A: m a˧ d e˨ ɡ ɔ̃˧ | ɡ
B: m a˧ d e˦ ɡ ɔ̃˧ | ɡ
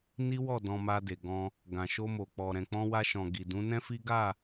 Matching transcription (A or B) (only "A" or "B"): A